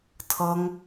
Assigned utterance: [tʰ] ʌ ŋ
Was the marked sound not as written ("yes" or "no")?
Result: no